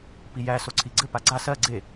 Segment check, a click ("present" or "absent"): present